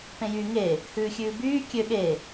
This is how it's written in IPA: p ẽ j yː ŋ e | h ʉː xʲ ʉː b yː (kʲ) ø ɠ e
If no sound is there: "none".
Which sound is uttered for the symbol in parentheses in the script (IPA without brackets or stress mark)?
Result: kʲ